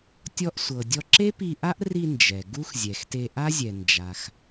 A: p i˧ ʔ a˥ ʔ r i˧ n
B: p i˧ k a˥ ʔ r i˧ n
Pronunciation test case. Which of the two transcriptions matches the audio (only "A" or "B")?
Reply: A